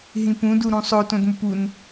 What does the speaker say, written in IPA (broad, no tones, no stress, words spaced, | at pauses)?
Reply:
ɦĩpũdu ɾũsˤotõdmʊp un